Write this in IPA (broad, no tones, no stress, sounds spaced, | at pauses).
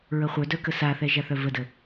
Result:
ɹ ə χʷ œ d œ k ə s a θ ɛ ʒ a θ œ v ə d ə